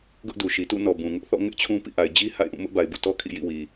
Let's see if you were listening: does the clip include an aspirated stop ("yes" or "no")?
yes